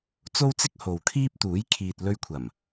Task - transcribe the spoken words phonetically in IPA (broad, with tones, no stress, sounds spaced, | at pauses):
t͡s o˥ w t͡s ɪ˥ k̚ h o˨ w kʰ iː˥ p̚ t̪ uː˨˥ j kʰ iː˨ t̚ l ɵ˧ ɥ kʷʰ ɐ˨˩ m